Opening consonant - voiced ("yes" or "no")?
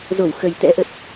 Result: yes